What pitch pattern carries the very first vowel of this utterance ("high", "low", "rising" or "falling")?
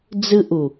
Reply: high